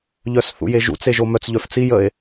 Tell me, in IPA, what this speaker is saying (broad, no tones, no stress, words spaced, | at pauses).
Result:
ʎœsθṵjeʒṵt͡s eʒomœt͡s ʎœft͡si jəe̯